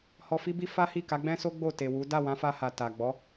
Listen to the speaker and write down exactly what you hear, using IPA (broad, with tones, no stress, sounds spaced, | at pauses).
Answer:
h ɔ˧ f i˦ b i˦ f a˦ h i˦˨ k a˨˦ ɡ͡b ɛ̃˦ s o˦ ɡ͡b o˦˨ t e˨ w u˨˦ d a˦˨ w ã˨˦ f a˧ h a˨ t a˨ ɡ͡b ɔ˨˦